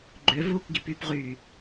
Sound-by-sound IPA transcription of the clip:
ɡ͡ǃ ø v uː k ɡ i p y p ʁ yː

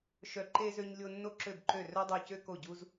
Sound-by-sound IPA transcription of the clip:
ʃ œ˥ ǃ e˥ z ø˥ ɲ lʲ o˥ nː o˥ ǁ ø˥˧ b ǃ ø˥˧ r œ˥ dˤ o˥˧ c ø˥ k o˥˧ ɟ u˥ z

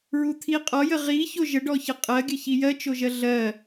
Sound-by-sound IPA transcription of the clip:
ɹ u t̪ʰ i qʼ ɔ j ə ʁ i ç o ʒ ə ɖ ɔ ç ə qʼ ɜ ɡʲ ə ç i j ɜ t͡ʃ o ʒ ɜ ɮ ɜ

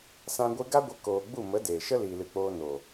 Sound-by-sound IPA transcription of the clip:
s ã˧ ɡʷ ɨ˧ ɡ a˦ ɡʷ ə˧ k oː˨ ɡ͡b u˦˨ m ə˨˦ d eː˨ ʃ ə˦ l iː˨ l ɨ˨ k͡p oː˧ n oː˨

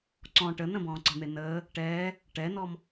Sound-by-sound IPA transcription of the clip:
ǀ ɔ̃ ʈ ə n ə̃ b ɔ̃ː ǀ ə̤ n̪ e n əː | ʈ ɛː | ʈ ɛ n ɔ m

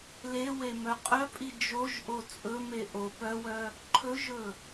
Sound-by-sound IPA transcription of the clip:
l e w e m œ qʼ œ pʼ i d͡ʒ o ʒ ʔ o t͡sʼ ɵ m e ʔ o p œ w œ | ǃʰ ɵ ʒ ɵ

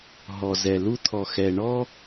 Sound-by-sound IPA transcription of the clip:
ɦ ɔ˨ z ɛ˨ l u˦ t̪ʰ ɔ˨ x ɛ˨ ɳ ɔ˦

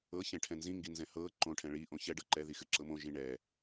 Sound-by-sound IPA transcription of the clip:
ɤ ç ɛ̃ ʈʰ ɛ̃ n z ĩ ŋ ɡ i n z ɛ̃ h ɤ ǃ õ ʈʰ ɛ̃ ɭ i ʔ õ ç ɛ ɖ ɤ ǃ ɛ ð i x ɨ ǁ ɤ m õ ʒ ĩ ɳ ɛ

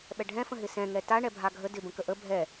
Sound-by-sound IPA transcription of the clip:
ɓ ɛ ɖʱ ɛ̃ f ə̃ ɦ ɪ s ɛ̃ ŋ ɛ t a ɳ ɛ bʱ a ɡʱ ə d ɪ b ə̃ k ə ʔ ə bʱ ɛ

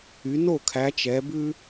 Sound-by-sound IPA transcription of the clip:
y˨˦ n o˥˨ kʰ æ˨˦ t͡ʃ ɛ˨˦ b ʉ˦

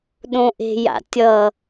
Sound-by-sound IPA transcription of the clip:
ɗ õ ʔ e̤ j a̰ tʲ ʌ

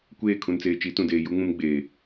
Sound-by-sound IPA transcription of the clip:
kʷ eː˦˨ kʰ ũ˨ n t͡s eː˨ t͡ʃ i˨˦ t ũ˨ d eː˨ j u˦ ŋ ũ˦ m ɡ͡b eː˨

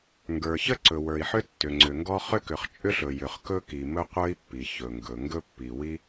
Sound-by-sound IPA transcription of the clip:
ŋ ɡ ə˞˩ ç ə˥ ǀ ɵ˩ w ə˞˩ i̯ ħ ʏ˥ tː ʏ˩ ŋ͡ǀ ʏ˩ ŋ ɡ ɔ˥ χ ʏ˥ k ʏ˩ χ t͡ʃʼ ʏ˥ ɬ ɵ˩ j ʏ˩ χ k ɵ˥ k i˩ m ɵ˥ qʷ ə˞˥ i̯ pː i˩ ç ɵ˩ ŋ ɡ ɵ˩ ŋ ɡ ɵ˥ pː i˩ w i˥

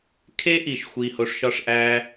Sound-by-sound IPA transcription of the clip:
kʰ e˦ ʔ i˨ ʃ xʷ iː˨ h o˨ ʂ ʃ ɒ˧ ʂ ʔ æː˧

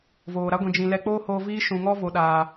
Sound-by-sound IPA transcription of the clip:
v oː˨ ɾ a˦ ɡʷ ĩ˨ d͡ʒ ĩ˧ l ɛ˧ k͡p oː˦ h oː˧ v iː˦ ʃ ũ˨ ŋ ɔ˦ v o˨ ɗ aː˨

